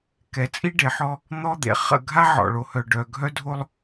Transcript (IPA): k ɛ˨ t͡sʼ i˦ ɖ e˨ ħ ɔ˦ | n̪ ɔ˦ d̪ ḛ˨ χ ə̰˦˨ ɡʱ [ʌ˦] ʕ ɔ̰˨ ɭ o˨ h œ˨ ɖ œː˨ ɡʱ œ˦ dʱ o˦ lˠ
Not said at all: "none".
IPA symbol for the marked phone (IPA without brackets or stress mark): a˦